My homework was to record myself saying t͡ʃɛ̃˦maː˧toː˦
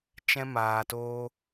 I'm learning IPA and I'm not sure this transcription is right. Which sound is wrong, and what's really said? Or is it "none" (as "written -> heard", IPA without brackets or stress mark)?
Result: none